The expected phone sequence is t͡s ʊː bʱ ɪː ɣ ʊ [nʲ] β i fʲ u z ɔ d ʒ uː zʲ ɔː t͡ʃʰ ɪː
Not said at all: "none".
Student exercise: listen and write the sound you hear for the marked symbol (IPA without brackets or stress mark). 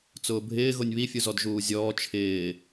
nʲ